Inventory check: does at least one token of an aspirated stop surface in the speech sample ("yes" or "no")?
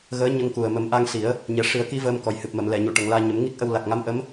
no